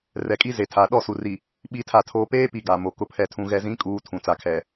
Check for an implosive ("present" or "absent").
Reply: present